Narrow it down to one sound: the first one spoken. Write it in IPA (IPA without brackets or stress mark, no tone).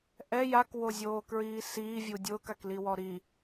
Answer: ʔ